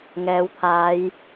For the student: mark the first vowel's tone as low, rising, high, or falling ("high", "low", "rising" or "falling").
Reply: rising